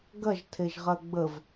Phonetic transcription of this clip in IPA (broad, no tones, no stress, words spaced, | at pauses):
ɡɐʒtʰeʒʁɐ ɡ͡bəv